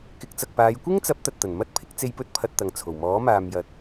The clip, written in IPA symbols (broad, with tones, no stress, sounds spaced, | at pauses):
k ɪ˨˥ k̚ t͡s ɐ˨ k̚ p aː˨˧ j kʷ ɪ˥ ŋ t͡s ɐ˨˥ p̚ t̪ ɐ˨ t̚ t̪ ɐ˨˩ n m ɐ˥ t̚ pʰ ɪ˨˥ k̚ t͡s e˧ j p ɵ˧ t̚ pʰ ɐ˨ t̚ t̪ ɐ˨ ŋ t͡sʰ o˨˩ w m ɔː˨˥ m aː˨ m j ɐ˨ t̚